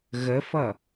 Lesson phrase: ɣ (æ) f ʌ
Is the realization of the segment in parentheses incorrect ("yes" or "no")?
yes